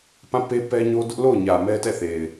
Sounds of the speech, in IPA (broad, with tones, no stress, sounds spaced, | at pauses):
p ã˦˨ p e˦ p ɛ˦ ɲ o˦ d ʊ˦ ʔ l o˦˨ ʊ̯ ɲ ä˨ m ɛ˦ t ɛ˦˨ θ e˨ ɪ̯